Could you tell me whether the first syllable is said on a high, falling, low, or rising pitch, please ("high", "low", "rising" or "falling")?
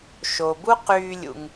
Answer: low